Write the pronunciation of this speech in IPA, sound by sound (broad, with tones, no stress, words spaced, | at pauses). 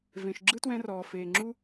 vẽ˨ʃɡ͡ǁɯ˦twɛ̃˧ rɔː˨feː˨ŋ͡ǁu˦